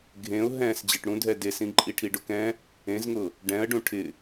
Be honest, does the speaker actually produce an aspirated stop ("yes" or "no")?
yes